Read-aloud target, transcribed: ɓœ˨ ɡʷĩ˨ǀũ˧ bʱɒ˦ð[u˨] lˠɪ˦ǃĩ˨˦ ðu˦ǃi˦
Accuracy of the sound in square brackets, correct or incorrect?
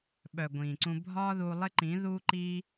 incorrect: u˧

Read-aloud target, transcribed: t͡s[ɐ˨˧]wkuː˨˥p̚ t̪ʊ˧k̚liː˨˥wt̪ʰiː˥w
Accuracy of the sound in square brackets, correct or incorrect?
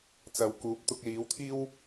correct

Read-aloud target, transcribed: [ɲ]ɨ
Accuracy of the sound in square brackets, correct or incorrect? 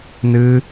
incorrect: n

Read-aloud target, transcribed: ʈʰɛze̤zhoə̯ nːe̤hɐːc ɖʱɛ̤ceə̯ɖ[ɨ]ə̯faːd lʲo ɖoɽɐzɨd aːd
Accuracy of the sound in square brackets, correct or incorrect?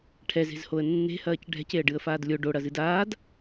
correct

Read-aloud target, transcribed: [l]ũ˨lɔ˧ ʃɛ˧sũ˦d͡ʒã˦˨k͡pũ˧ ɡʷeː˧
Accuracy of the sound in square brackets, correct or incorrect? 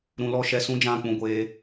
incorrect: ɾ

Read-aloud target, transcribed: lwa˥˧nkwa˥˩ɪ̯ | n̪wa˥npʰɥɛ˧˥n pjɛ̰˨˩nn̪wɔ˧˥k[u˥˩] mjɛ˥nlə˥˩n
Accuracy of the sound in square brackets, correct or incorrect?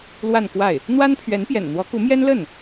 incorrect: u˧˥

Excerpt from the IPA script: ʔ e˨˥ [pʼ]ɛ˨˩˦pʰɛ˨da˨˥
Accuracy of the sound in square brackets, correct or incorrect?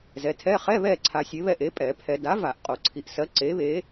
correct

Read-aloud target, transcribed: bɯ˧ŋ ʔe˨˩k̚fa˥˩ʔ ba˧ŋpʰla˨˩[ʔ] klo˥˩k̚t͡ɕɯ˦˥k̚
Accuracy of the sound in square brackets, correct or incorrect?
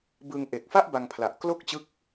correct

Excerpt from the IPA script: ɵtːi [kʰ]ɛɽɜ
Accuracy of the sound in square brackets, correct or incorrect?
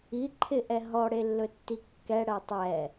incorrect: kː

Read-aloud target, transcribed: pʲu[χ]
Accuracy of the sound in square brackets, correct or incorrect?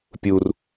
incorrect: r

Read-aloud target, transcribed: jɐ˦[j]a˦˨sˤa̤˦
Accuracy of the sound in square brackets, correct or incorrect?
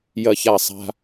incorrect: ç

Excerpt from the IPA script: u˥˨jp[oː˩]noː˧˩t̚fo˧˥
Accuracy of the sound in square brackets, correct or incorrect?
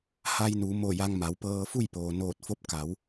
correct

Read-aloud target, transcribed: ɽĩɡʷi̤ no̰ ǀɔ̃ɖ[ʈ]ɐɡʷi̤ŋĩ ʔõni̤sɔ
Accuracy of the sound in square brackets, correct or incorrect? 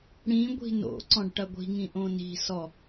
correct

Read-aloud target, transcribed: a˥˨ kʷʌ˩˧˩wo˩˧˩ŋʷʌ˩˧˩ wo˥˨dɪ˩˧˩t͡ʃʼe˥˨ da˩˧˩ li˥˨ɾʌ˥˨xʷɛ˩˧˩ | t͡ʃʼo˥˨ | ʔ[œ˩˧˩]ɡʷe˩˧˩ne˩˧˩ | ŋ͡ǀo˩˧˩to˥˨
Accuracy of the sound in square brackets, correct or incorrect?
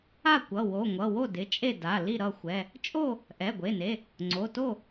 incorrect: ɛ˩˧˩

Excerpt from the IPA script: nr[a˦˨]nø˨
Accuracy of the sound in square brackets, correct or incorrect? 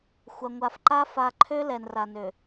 incorrect: a˨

